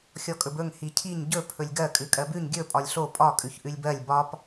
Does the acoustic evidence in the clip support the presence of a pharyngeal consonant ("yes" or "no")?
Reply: no